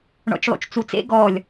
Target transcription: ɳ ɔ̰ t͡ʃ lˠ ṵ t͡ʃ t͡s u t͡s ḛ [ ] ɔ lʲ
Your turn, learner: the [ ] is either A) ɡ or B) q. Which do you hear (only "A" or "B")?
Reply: A